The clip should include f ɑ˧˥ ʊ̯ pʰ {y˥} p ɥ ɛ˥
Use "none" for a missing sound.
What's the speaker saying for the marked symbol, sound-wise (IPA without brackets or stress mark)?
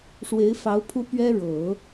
u˥